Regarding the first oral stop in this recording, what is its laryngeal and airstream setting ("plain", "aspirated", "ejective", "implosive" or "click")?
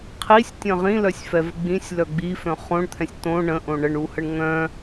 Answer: aspirated